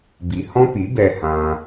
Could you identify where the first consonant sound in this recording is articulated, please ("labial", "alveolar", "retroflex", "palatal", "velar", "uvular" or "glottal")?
labial